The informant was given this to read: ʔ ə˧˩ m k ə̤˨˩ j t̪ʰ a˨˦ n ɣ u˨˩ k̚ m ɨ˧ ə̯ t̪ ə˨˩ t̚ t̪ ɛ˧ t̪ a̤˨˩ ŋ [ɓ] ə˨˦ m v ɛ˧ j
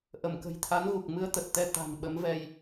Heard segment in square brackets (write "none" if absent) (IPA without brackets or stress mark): ɓ